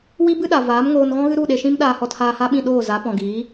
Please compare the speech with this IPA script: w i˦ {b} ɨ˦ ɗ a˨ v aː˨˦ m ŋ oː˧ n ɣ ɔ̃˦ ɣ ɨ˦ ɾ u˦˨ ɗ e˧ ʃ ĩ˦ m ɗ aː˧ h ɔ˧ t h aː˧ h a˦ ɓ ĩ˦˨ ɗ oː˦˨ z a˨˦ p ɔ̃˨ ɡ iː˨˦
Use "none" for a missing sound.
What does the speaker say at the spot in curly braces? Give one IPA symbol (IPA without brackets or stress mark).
b